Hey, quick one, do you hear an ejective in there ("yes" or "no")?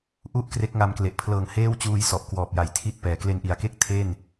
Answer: no